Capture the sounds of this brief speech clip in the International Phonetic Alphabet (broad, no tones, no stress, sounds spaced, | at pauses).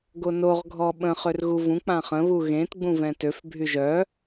ɡ o n o ʁ ɡʱ ɔ ɓ ə̃ χ ø r ɣ u v ũ k͡p ã χ ə̃ β u ɣ ẽ t ɡ͡b ũ v ɛ̃ t ø f bʱ y ʒ œ